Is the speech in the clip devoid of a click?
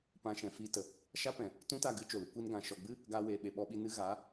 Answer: yes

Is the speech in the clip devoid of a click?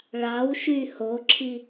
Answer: no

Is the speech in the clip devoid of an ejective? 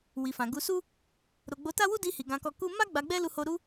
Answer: yes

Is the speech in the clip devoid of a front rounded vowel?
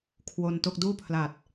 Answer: yes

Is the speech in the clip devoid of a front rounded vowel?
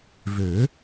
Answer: no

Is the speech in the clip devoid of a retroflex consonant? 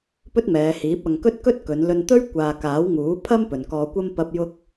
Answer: yes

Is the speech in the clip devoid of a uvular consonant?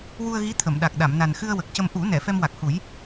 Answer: yes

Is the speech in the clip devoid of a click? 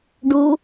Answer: yes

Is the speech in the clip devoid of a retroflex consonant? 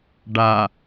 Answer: no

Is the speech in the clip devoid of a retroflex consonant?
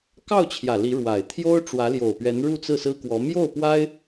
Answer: no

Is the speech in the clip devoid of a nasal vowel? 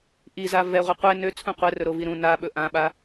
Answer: no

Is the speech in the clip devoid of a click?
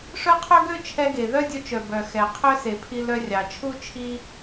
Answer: yes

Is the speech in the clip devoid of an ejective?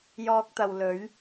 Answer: yes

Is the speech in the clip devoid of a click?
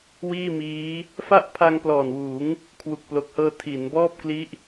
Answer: yes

